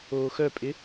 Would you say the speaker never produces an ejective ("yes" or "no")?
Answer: no